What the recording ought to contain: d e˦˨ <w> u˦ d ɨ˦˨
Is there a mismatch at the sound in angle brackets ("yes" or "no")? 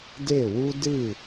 no